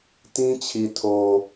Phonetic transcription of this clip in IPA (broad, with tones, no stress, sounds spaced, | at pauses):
t ĩ˦ t͡ɕʰ i˨ tʰ o˨